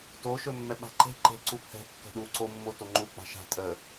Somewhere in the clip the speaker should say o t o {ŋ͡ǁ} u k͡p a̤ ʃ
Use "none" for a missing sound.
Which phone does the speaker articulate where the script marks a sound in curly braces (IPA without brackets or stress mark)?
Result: ŋ͡ǃ